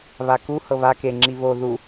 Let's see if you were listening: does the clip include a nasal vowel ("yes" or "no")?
no